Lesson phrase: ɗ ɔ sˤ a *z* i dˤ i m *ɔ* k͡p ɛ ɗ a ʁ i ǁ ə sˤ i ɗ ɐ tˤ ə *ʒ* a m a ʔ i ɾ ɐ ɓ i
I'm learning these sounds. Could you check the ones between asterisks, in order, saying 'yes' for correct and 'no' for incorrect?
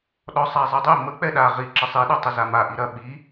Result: no, no, no

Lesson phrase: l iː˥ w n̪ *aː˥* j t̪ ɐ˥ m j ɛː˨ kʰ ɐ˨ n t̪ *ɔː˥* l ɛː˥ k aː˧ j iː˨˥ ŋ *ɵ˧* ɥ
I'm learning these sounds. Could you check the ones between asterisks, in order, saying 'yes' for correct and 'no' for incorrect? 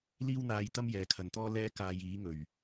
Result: no, yes, no

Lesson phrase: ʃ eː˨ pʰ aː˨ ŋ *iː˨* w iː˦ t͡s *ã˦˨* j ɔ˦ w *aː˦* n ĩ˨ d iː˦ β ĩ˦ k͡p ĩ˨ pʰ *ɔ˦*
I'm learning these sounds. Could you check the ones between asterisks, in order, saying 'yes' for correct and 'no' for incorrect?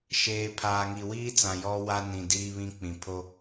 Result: no, no, no, no

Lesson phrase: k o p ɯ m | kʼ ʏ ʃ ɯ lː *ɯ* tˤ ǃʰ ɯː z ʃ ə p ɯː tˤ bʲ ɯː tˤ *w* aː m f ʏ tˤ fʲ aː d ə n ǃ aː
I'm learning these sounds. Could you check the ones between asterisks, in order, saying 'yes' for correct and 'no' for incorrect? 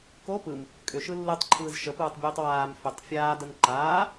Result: yes, yes

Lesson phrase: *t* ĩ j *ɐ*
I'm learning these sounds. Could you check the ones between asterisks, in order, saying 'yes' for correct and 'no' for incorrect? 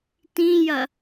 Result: yes, yes

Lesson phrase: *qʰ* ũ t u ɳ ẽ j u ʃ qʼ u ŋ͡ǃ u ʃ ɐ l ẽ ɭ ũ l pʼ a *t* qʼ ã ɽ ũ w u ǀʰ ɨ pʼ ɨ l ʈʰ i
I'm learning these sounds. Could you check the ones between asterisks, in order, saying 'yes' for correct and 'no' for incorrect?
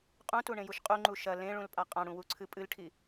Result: no, no

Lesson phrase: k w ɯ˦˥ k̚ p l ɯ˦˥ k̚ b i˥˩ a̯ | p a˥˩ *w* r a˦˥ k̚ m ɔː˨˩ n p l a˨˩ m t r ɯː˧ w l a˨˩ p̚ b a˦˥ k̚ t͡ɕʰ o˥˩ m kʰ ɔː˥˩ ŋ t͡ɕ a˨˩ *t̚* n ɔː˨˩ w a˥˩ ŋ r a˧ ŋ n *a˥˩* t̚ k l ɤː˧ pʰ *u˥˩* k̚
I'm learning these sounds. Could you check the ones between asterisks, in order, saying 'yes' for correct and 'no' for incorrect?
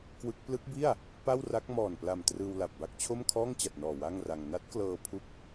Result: yes, yes, no, yes

